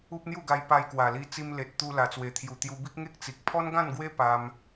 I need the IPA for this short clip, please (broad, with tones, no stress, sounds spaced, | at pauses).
u˦ p̚ n̪ j u˥˧ ɡ a˧ j p a˧ j k w a˨˩ l i˧ t͡s i˧ m l e˨ t̚ t̪ u˧ l a˨˩ t͡s w e˨˩ t̪ʰ j u˨˩ t̪ j u˧ b i˦ k̚ ŋ e˦ k̚ t͡s i˨ k̚ pʰ ɔ˦ n ɡ ã˥˧ n ɡ w e˦ p a˧ m